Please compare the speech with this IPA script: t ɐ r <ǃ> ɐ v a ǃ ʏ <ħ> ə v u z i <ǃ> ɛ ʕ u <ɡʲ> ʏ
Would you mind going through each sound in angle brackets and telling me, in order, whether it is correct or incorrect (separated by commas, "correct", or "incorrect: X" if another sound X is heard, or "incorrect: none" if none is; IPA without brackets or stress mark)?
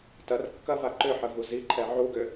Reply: incorrect: kː, correct, incorrect: ǃʰ, incorrect: ɡ